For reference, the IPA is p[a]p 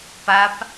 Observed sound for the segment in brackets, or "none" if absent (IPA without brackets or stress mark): a